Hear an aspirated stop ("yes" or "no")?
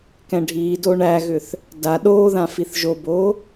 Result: no